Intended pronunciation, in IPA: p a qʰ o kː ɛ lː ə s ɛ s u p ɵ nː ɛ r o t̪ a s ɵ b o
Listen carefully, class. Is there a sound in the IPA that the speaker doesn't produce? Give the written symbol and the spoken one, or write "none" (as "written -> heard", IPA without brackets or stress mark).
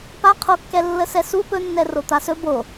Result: none